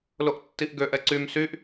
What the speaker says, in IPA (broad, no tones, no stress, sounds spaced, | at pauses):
l o ʔ tː i ʔ ɡ ø ʔ ɛ ǀ y m s y ʔ